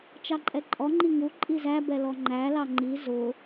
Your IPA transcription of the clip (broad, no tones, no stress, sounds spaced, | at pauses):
t͡ʃ ɑ ǃʼ ɛ ǃʼ ɔ ŋ͡ǃ i ŋ u ǃʼ i z æ b ɛ l ɔ ŋ͡ǃ æ l ɑ ŋ͡ǃ i z ʊ